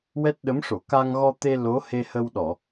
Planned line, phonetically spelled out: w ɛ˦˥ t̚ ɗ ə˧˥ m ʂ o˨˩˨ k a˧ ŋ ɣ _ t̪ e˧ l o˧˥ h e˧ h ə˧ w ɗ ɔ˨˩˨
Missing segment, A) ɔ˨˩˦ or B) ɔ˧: B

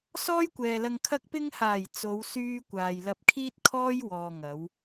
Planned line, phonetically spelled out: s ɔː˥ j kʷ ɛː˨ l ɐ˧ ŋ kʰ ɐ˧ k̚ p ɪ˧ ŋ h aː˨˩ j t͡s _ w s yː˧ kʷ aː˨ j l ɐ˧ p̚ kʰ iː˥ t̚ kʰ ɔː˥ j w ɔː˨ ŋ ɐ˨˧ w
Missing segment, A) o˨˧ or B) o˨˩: A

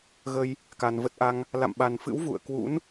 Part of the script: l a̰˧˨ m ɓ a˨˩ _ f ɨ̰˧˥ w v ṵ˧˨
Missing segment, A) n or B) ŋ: A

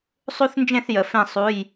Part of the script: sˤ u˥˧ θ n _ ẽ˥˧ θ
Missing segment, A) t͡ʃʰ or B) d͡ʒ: B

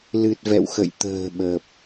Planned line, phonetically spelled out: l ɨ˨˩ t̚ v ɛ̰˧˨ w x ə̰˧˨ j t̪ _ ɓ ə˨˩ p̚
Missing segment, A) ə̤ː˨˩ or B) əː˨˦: A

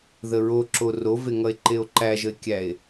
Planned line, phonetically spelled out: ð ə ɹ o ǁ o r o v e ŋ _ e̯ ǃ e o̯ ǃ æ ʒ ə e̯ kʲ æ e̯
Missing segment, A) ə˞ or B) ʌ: B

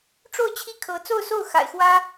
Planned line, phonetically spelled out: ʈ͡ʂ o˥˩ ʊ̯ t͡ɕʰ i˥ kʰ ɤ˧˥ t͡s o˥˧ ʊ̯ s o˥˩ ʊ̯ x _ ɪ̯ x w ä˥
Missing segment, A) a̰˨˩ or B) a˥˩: A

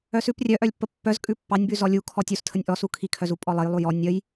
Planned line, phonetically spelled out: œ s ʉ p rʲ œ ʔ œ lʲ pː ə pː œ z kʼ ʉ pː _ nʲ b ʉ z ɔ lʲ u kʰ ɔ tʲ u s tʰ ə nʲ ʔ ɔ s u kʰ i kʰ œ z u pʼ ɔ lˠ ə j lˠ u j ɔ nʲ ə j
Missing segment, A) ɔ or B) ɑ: B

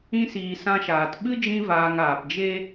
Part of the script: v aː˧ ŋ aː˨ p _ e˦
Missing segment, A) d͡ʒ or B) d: A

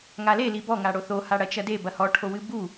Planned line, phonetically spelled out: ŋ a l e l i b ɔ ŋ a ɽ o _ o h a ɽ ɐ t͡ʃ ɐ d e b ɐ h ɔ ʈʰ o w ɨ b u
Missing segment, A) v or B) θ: B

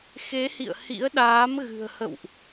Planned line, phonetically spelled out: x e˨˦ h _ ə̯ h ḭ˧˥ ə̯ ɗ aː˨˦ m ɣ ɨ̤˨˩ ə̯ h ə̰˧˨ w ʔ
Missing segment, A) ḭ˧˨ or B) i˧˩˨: A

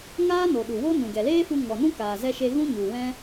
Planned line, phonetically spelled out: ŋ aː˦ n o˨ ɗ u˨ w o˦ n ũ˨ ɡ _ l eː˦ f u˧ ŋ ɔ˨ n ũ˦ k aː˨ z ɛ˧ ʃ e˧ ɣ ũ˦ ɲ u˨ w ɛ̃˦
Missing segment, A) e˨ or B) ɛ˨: B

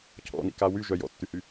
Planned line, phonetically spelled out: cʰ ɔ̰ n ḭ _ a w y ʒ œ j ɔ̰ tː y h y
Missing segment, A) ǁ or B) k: B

